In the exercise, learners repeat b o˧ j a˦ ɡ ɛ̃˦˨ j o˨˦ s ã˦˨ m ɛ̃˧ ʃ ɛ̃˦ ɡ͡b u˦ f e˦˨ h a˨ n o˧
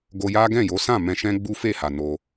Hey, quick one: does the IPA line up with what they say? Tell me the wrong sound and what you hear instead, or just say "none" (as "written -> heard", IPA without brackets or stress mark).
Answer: b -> ɡ